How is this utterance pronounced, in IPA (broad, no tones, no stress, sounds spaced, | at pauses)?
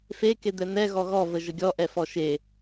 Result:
f e k e d̪ ɛ n̪ ɛ ɣ ɔ ɣ ɔ v ə ʒ ə ɡʲ ɔ ʔ ɛ f ɔ ʃ e